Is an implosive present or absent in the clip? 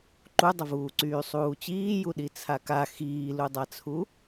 present